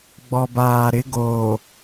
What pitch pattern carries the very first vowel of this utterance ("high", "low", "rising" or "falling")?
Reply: low